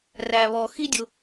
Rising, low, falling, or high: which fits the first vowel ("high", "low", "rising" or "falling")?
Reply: low